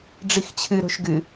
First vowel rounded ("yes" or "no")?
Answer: no